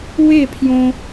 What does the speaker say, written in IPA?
w e˥˧ pʰ j õ˥

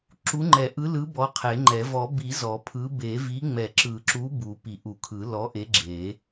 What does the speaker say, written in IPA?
ǁ u˨˥ ŋ͡ǃ ɛ˨˩˦ ʔ ɯ˨˥ l ɯ˨˥ b ɔ˨˥ qʰ e˨˩˦ ŋ͡ǃ ɛ˨˩˦ v ɔ˨˩˦ b i˨˩˦ z ɔ˨˩˦ pʰ ɯ˨˥ b e˨˩˦ v i˨˥ ŋ͡m ɛ˨˩˦ ǁ ɯ˨˩˦ ǁ u˨˥ b u˨˩˦ p i˨˩˦ ʔ u˨˩˦ kʰ ɯ˨˩˦ l ɔ˨˥ ʔ e˨˥ ɡ͡ǁ e˨˩˦

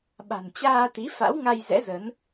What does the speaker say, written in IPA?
ɓ a̤˨˩ n t͡ɕ aː˧ t̪ i˨˦ f a̰˧˥ w ŋ a˧ j z ɛ̰˧˥ z ə˨˦ n

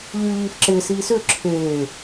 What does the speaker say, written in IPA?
ʎ yː ʎ iː f ǁ ɪː s iː s ʏː ǁʰ eː

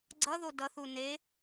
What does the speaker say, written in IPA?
ɡ͡ǀ ʌ ð o d ʌ θ u n e

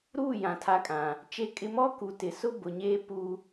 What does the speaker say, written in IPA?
ɾ uː˦˨ j ã˨ tʰ a˨˦ kʼ ã˨ | t͡ʃ e˦ kʼ ɪ˦ m ɔ˦ k u˨ t ɪ˨ s ʊ˦ b ʊ˨ ɲ eː˦ p u˦

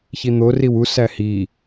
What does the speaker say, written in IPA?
ç i n̪ o r i w u s æ h i

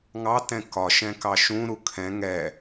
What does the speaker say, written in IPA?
ŋ ɑ t ɛ̃ k ɒ ʃ ɛ̃ k ɑ ʃ ũ ɾ u kʰ ɛ̃ ŋ ɛ

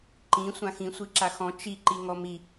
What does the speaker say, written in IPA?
ǃ ĩ sʷ ã x ĩ sʷ i ǁ a x ɔ̃ t͡ʃ i ǃ i ŋ ɔ m i

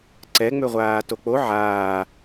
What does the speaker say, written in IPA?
ǀ ɛ ŋ͡m ø ʁʷ aː t o k͡p o ʕ aː

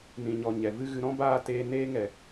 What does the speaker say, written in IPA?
n ĩ˨ ɲ ɔ˨ ɲ ɛ˨ v ɨ˦ ɣ ɨ˧ ɾ ɔ̃˦ b aː˦ t eː˧ n eː˦ ŋ ɛ˨

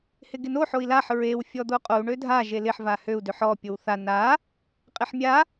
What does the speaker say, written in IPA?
h ɪ ɡ ɪ n o ħ o i̯ l a ħ ɹ e w fʲ ɔ d̪ o qʼ o u̯ ɳ ø dʱ a ʒ e l ɪ ħ v a h ø u̯ d ø ħ ɔ pʲ o w θ a n a | qʼ ɪ ħ mʲ a

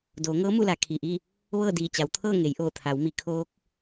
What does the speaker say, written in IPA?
d oː˩˧ ŋ ɤː˧˥ m u˥˨ l a˩˧ kʰ i˩ ʔ i˥˨ | ʋ ɤː˥˨ d iː˧˩ t͡ɕ a˩˧ w t̪ʰ ɤː˥˨ ŋ e˩˧ j ʔ oː˧˩ t̪ʰ a˩˧ w m i˩˧ kʰ oː˧˥ k̚

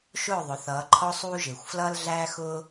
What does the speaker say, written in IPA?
ʃ ʊː˥˨ ðˤ ʊ˩˧ θ ʌː˩˧ ǃʰ ɔ˧ sˤ uː˧ ʒ ɪː˩ xʷ f l ʌː˧ l ɮ æː˧ x ʊː˧

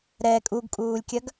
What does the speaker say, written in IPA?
ɾ ɛ kʼ u ɡ kʼ uː lʲ kʲ ɐ ɡ

